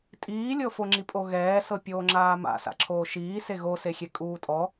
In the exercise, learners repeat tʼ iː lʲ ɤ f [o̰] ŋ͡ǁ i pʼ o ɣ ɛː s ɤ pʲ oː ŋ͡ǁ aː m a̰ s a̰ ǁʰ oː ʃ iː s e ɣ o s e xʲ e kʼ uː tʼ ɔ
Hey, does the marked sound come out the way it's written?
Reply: no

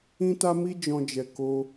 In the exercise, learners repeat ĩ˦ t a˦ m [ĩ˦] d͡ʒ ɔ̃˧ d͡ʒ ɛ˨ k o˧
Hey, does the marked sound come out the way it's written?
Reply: no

